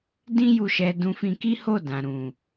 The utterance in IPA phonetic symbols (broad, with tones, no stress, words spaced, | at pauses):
dĩ˦ju˧ʃɛ˧ dũ˧fĩ˧ki˦ho˦˨ dã˨ɾũ˨